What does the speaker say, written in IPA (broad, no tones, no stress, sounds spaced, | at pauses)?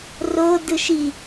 r o d ɯ ʃ i